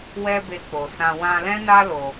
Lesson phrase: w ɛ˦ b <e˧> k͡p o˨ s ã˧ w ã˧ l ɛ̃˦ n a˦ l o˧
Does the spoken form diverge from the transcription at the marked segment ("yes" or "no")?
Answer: no